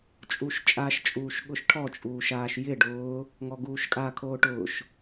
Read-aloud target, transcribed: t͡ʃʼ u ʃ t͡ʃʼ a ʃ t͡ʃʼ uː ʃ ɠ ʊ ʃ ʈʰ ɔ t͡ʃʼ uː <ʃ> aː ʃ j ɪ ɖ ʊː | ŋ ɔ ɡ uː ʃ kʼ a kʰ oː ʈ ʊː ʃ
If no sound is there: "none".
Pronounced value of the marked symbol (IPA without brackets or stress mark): ʃ